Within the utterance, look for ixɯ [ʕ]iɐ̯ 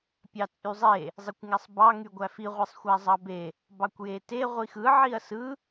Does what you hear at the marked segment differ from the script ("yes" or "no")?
no